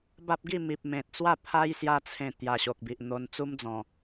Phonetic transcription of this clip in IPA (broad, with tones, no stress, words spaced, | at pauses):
ba˦p̚ɡi˥˧mi˨p̚ mẽ˨t̚t͡swa˥˧ pʰa˦j sja˧t͡sʰẽ˨˩ t̪ja˨˩ɕo˨k̚bi˨ʔ n̪o˧n t͡su˦md͡zɔ̃˨˩